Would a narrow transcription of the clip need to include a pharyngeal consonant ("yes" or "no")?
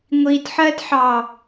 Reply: yes